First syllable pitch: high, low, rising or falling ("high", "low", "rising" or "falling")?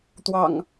low